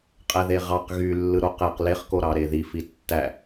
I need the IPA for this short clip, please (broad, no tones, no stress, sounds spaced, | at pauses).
qʼ æ ð e ʁ ɑ q ɣ y lː ɯ ɾ o q æ q l e χ k o ɾ ɑ ɾ e ð i f i tː æ